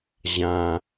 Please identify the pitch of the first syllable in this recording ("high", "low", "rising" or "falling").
low